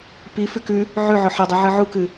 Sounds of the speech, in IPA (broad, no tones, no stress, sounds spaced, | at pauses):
p i f ʉ k ʉ | ʕ ʉ ʕ ɵ ħ ɐ dˤ ɨ ʕ ɨ ʕ u k ɨ